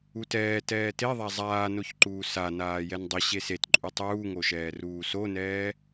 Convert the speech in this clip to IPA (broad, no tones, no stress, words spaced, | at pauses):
utɛː tɛːteðˤa zˤaːnoçǃuː sa naːjɛndˤɪ ɕesetǃʼu tˤuːŋoʃɛː ruːsonɛː